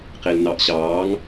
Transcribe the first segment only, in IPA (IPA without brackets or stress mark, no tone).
q